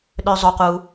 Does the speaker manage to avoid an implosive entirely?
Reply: no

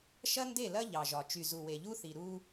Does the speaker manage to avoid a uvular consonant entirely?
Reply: yes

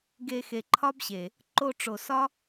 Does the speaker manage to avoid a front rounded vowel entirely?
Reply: yes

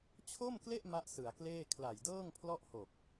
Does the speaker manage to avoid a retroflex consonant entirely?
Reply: yes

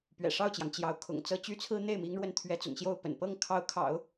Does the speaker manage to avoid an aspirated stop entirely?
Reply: no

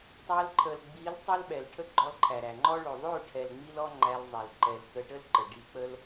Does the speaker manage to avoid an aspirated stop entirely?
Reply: no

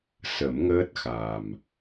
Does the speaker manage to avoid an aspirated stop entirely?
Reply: yes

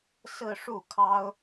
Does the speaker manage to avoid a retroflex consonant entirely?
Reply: no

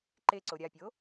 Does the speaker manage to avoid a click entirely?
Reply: no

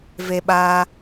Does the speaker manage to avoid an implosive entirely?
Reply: no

